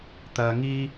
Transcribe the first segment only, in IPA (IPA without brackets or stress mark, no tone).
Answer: t̪